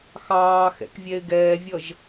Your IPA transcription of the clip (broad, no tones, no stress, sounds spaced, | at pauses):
x ɑː x ɛ̰ k vʲ ɛ ɪ̯ ɡ ɛː vʲ ʌ ʒ